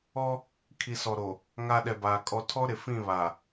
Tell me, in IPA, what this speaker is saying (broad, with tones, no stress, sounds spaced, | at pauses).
ɔ˦ | kʰ i˨ s ɔ˨ ɾ o˨ | ŋ a˨ ɗ ɛ˨ b aː˨ kʼ ɔ˨ tʰ ɔ˦ ɾ ɪ˨ f ĩ˦˨ β a˨